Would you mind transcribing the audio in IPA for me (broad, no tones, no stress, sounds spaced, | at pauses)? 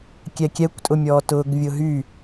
kʲ ɛ kʲ ɛ kʷ tʼ ʊ mʲ ɔː t ʊː ɡ vʲ ʊ ɦ y